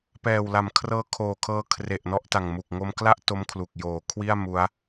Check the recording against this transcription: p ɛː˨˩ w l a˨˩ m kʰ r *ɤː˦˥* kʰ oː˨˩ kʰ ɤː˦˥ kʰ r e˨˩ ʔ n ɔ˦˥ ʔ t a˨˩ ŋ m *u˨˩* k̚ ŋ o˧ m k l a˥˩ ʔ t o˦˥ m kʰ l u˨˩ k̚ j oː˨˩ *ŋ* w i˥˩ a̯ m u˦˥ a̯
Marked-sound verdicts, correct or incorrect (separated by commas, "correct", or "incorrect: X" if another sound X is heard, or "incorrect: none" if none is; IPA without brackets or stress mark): correct, correct, incorrect: kʰ